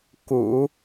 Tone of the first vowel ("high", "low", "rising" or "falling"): low